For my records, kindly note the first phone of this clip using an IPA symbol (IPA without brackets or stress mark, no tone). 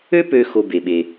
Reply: ø